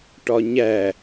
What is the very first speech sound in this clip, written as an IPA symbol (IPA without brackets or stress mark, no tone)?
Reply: ʈ